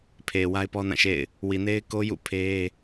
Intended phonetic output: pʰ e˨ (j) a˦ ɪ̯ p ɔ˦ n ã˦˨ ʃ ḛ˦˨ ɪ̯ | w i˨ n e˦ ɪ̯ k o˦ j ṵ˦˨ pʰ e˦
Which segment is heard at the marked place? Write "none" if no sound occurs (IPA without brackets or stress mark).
w